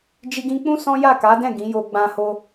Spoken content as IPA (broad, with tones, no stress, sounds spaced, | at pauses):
d͡ʒ i˧ ɡ ĩ˧ k͡p ũ˦ s ɔ̃˦ j a˦˨ k a˨˦ d ɛ̃˦˨ ɡ ĩ˨˦ j o˧ ɡ͡b ã˧ h o˧